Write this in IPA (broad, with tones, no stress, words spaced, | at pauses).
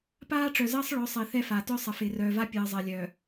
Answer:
paː˦ʈ͡ʂœ˨zəː˦sˤ ɭœ˨˦sˤɪː˨ θɛ˦fa˨ tœ˦sˤə˨fɪː˨ rœː˨va˦ pʲɨː˨zˤɜ˨ lʲœː˨